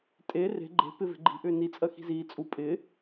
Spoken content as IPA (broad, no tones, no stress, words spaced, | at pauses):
tʼe re̤ ɡ͡ǃe̤ pɪve̤ ɡ͡ǃi̤ʔʏː ni t͡sʼɜxi̤ziː t͡sʼu pʼɪ